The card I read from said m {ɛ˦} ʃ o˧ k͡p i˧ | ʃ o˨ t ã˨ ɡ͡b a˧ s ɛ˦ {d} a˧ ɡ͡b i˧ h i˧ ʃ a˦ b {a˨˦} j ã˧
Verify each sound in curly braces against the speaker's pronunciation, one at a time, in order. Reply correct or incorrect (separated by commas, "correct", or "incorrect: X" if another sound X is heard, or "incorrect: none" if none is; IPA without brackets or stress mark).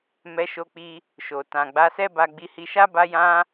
incorrect: ɛ˧, incorrect: b, incorrect: a˧